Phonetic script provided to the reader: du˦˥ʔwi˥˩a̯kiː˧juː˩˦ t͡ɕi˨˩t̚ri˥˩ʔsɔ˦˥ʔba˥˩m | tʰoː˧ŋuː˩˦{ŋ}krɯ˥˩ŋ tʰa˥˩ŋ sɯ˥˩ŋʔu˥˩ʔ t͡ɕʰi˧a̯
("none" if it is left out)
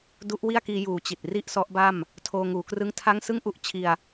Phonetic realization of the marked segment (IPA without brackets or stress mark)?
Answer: none